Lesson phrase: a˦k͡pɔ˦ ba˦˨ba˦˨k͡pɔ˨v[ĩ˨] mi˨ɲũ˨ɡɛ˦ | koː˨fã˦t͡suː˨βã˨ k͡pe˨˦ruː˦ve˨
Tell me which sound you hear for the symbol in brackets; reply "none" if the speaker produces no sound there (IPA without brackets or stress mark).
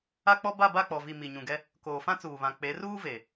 i˨